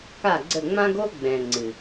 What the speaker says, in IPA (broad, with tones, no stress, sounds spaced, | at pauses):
k a˦˨ ɡ͡ǀ ə˦˨ ŋ͡m ã˦ ɡ o˦ ɡ͡b ɛ̃˨ ŋ͡ǀ ɨ˨